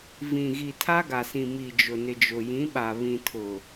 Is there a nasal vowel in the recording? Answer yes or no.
yes